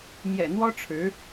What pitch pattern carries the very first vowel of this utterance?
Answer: low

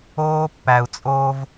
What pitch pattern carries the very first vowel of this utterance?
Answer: high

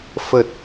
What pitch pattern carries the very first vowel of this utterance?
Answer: low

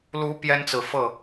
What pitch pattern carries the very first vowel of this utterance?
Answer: rising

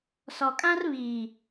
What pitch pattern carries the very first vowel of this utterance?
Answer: low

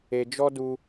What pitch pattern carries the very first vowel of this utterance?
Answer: low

